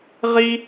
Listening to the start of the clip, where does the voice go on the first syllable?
high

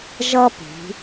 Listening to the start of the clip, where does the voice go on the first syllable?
high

